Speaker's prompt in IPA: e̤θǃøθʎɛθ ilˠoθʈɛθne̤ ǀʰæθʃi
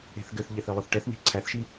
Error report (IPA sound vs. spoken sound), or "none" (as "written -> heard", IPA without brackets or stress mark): ǃ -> ɡ